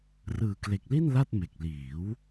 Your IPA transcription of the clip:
r ɯː˨˩ k l e˨˩ k̚ l i˥˩ n l a˥˩ t̚ m e˨˩ k̚ l iː˩˦ w

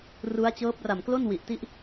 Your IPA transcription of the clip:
r u˦˥ a̯ t͡ɕ ɤː˦˥ p̚ r a˨˩ m k l o˥˩ n w i˨˩ ʔ t i˦˥ ʔ

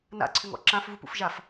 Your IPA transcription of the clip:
n a̰ ǀʰ ʏ ŋ ɔ̰ ǁ ã f v u p ṵ f ʒ a f

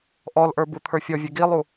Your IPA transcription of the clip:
ʔ ɔ l ʔ ə˞ b u t̪ʰ ə˞ fʲ ɔ vʲ ɘ ɡ i lˠ u

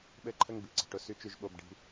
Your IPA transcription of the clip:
ɓ ɘ˥ ǃʰ ə˥ ŋ b i˩ ǀ i̤˩ ʈ ʊ˥ s y˥ t͡ʃ y˥ ʒ ɓ o˥ b ɖ i̤˥

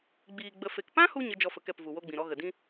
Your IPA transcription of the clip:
ɡ͡b iː˧ ɡ͡b ə˧ f e˨ k p ã˦ h u˧ ɲ ə˦ d͡ʒ ɔ˦ f ə˧ k ɛ˦˨ p v u˨ w o˦ ɡ͡b ĩ˨ ɾ ɔ˦ ɣ ə˨ d ĩ˦

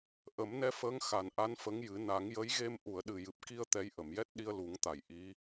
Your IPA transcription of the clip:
ʔ ə˨˩˦ m n ɛ˧ f əː˧˥ ŋ x a˨˩ n ʔ a˧˥ n f ə˧˥ ŋ j ɨ˨˩˦ n a˨˩˦ ŋ j ə˧˥ j ɣ e˧ m ʔ u˨˩˨ ə̯ ɗ ɨ˨˩ j ɨ˨˩ p̚ k i˧ ə̯ t̪ ɛ˧˥ j ʔ ə˨˩˨ m j ɛ˦˥ t̚ ɗ i˧ ə̯ l u˨˩˦ ŋ t̪ a˨˩˨ j ʔ i˧˥

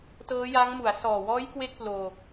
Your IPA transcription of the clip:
t ɤː˦˥ j a˦˥ ŋ m u˩˦ a̯ s ɔː˨˩ w ɔː˦˥ j k w e˥˩ k̚ p l oː˧

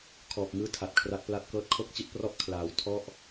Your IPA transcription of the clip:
kʰ ɔː˨˩ p̚ ŋ ɯː˦˥ tʰ a˨˩ t̚ kʰ r a˦˥ t̚ p l a˥˩ t̚ k ɤː˦˥ t̚ kʰ o˥˩ k̚ t͡ɕ i˦˥ t̚ p r ɔ˥˩ ʔ kʰ l aː˩˦ w tʰ ɔ˥˩ ʔ

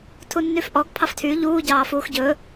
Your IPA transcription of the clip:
tʰ u nː y f ʔ ɔ ɡ pʰ ɑ f tʰ y ʎ uː ɟ ɑː f uː x ɟ ɵ

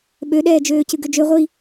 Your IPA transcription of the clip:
ɓ ø ɗ ɛː d͡ʒ øː c ɨ ɡ ø d͡ʒ ø ʁʷ i

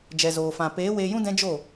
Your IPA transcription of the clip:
d͡ʒ ɛ˨ z oː˨ f ã˨ p eː˨˦ w eː˧ j ũ˦ d ɛ̃˦ d͡ʒ o˦˨

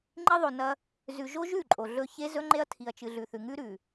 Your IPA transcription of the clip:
ŋ͡ǃ i˦ ðˤ o˨ n ɐ˦ | z ʉ˨ ʒ o˦ ʒ ʉ˦˨ ǃʼ o˨ ɮ ɵ˦ ç e˦ z ɵ˦ ŋ͡ǃ e˦ ɐ̯ tʰ i˨ ɐ̯ t͡ʃ ɨ˨ ɮ ʉ˨ θ ʉ˨ ŋ ʉ˦ ɾ ʉ˨

